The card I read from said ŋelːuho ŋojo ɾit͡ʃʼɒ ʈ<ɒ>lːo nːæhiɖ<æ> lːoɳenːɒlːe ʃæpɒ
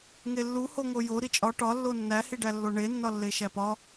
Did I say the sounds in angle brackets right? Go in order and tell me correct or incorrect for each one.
correct, correct

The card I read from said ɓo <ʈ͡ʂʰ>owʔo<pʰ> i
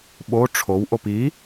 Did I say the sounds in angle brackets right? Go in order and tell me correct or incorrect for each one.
correct, incorrect: p

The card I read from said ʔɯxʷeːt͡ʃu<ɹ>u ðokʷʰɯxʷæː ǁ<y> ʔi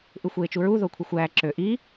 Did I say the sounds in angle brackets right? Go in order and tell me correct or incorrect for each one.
correct, incorrect: ø

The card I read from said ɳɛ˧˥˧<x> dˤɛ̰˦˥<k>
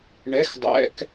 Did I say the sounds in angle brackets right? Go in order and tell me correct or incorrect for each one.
correct, correct

